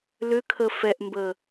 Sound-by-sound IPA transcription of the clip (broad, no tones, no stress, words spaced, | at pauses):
lʏkʰə fɛʔmbə